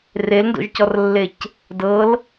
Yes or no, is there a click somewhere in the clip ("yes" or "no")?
no